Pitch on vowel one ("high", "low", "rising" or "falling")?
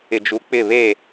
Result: low